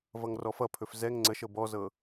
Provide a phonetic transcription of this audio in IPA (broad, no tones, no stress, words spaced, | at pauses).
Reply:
vʌŋrɔfʌpʰɵf zɛŋ ŋ͡ǀəʃɤ bɔzɤ